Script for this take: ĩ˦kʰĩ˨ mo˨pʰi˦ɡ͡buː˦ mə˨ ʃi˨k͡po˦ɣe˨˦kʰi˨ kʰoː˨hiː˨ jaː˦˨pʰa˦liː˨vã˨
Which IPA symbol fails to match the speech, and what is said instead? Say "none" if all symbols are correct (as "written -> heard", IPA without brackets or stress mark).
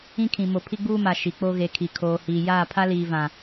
ə˨ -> a˨